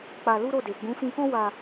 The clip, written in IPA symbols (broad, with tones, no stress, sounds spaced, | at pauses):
k͡p a˧ l u˦ ɾ o˦˨ d e˨ ɡ͡b ũ˨˦ f ĩ˧ k ɔ̃˦ w a˧